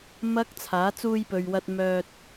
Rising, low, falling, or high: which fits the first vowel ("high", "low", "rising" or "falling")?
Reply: high